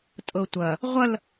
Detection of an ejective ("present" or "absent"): present